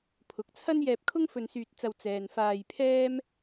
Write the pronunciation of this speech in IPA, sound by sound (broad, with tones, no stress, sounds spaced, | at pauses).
pʰ ʊ˨˥ k̚ t͡sʰ ɐ˥ n j ɛː˧ p̚ kʰ ʊ˥ ŋ f ɵ˧ n s yː˧ t̚ t͡s ɐ˧ w t͡s ɛː˨ n f aː˧ j pʰ ɛː˥ m